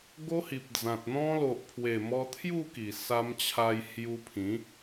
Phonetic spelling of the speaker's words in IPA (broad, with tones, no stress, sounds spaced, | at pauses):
ɡ o˦ h i˨ p̚ d͡z ã˨ t̚ n̪ ɔ̃˧ l o˨ ʔ pʰ w e˨˩ m ɔ˧ t̪ʰ j u˥˧ k i˨˩ s a˧ m t͡ɕʰ a˧ j h j u˧ pʰ ĩ˨˦